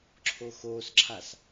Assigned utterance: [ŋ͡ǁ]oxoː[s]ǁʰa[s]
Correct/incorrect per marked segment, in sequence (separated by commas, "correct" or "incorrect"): incorrect, correct, correct